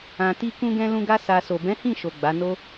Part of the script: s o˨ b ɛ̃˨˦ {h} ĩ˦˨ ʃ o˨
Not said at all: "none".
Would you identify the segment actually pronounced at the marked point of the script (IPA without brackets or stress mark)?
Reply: h